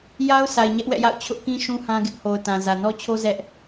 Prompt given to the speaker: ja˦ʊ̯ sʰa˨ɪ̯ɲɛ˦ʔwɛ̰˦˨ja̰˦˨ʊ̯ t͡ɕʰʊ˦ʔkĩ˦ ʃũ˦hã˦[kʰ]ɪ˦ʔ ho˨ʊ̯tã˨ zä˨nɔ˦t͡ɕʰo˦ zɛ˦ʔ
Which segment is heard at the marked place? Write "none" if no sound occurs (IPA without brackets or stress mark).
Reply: ɡ